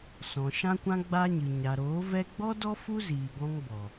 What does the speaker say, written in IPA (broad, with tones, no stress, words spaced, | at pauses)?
sɔ̃˨ʃã˦kʷã˦ ɡ͡ba˧ɲɨ˨ ɲa˨ɾoː˨˦vɛ˦ ɡ͡bɔ˦dɔ˦ fu˦ziː˨ ɡɔ̃˦ŋbɔ˨